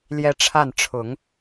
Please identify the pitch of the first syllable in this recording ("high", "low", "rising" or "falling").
high